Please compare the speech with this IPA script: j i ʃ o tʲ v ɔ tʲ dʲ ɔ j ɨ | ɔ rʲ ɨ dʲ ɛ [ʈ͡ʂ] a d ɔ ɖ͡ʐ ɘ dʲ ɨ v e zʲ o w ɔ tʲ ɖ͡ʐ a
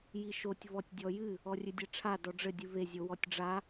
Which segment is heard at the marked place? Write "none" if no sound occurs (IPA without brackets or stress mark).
ʈ͡ʂʰ